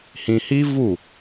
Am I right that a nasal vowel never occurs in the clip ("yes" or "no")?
no